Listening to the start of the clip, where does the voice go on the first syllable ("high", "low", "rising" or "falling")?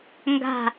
falling